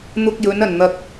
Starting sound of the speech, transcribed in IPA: n̪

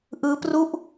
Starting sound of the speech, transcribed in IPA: ʔ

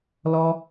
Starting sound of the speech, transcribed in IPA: l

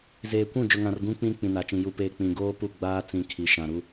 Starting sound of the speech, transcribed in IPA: z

